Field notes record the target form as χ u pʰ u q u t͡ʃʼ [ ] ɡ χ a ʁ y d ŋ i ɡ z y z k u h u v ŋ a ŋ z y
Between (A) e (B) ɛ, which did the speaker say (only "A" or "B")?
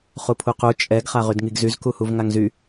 B